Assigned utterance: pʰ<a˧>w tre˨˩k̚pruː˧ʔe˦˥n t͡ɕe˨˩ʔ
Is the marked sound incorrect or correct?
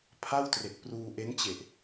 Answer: incorrect